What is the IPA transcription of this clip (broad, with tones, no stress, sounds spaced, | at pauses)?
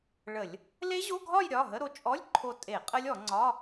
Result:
ɭ ə˧˩˧ lʲ | l e˦˥ ʑ o˧˥˧ ɡʱ ɒ˥˧ j ɾʲ ɒ˩˧˩ ɦ ə˧˥˧ ɾ o˧ t͡ʃʼ ɔ˧˥˧ lʲ ǃʰ o˧ tʼ e˧˩˧ qʼ ə˦˥ lʲ ɔ˧˩˧ ŋ͡ǀ ɒ˧˥˧